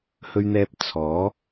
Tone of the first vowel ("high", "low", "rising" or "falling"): high